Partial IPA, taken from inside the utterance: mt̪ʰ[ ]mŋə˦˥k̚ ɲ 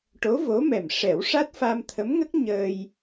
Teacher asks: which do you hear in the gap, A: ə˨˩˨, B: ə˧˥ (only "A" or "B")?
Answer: B